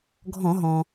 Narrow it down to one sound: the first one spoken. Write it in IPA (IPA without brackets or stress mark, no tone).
ɡʱ